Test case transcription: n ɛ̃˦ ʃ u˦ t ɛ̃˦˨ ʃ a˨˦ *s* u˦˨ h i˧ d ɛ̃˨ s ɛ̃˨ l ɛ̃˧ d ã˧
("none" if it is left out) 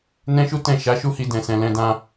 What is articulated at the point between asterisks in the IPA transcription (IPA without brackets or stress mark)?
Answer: ʃ